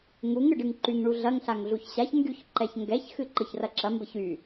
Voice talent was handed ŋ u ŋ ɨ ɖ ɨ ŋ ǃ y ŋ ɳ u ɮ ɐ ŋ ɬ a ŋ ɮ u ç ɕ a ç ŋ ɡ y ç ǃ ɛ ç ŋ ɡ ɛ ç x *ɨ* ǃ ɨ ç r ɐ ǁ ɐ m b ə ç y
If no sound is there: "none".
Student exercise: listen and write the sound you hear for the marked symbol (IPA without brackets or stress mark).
ɨ